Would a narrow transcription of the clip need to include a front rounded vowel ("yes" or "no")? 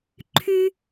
yes